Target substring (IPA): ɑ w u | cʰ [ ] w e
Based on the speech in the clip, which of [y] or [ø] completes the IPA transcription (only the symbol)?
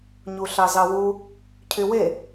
y